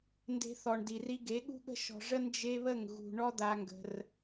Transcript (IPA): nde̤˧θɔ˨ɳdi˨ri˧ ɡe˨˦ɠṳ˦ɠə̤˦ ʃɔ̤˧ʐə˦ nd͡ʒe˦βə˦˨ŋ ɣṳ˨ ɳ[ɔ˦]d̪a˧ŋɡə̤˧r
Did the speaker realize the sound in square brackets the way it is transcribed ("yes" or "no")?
yes